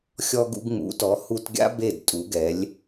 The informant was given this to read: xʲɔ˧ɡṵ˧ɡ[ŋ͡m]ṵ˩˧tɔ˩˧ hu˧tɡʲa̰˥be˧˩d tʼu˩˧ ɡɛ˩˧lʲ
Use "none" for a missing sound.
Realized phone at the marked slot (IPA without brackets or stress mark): ŋ͡m